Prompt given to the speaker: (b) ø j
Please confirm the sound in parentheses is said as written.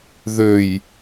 no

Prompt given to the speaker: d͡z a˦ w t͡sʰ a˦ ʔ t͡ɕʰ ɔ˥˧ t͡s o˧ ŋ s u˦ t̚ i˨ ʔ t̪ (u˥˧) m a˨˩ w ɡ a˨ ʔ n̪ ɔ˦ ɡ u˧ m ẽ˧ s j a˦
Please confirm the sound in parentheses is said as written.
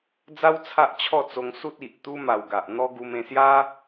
no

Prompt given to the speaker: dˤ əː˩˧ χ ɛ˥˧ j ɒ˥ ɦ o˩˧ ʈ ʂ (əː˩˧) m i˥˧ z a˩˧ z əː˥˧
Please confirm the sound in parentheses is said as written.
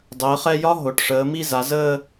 yes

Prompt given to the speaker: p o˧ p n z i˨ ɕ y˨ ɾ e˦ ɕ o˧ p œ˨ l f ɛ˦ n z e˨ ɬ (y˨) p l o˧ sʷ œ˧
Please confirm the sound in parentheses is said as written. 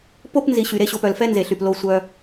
yes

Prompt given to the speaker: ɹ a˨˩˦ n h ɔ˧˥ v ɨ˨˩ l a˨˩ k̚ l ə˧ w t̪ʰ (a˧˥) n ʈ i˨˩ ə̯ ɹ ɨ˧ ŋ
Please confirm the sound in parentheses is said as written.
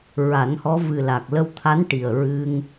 yes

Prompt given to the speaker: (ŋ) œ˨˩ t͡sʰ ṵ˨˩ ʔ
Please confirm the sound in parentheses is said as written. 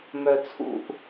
no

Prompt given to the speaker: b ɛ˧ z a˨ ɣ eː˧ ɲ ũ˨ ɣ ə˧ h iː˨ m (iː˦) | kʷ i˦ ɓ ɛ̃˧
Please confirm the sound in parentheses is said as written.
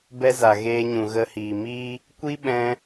yes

